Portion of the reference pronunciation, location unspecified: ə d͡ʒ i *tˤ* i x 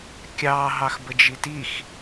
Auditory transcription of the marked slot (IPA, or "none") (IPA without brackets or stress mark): t